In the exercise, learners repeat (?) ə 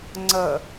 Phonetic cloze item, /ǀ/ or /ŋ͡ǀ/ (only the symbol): ŋ͡ǀ